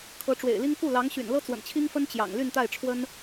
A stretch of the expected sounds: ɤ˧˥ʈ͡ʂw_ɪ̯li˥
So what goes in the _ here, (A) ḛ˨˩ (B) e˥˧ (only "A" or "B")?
A